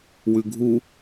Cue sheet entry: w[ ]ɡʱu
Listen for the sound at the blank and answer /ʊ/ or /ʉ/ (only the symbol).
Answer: ʉ